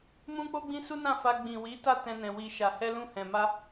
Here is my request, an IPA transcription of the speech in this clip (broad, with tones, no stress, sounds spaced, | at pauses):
m ũ˦ k͡p o˦ ɡ͡b ĩ˦ s u˦ n ã˦˨ f a˧ ɡ͡b ĩ˨ w i˨˦ t a˦˨ t ɛ̃˧ n ɛ̃˨ w i˨ ʃ a˨ h ɛ˧ l ũ˧ h ɛ̃˨ m a˧